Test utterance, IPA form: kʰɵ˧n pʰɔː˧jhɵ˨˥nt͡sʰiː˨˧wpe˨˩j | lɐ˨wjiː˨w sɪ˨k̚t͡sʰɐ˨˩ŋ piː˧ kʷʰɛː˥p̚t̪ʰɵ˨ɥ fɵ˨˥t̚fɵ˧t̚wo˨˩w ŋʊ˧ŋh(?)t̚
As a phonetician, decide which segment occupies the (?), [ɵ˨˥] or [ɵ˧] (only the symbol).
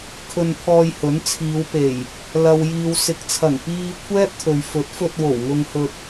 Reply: ɵ˧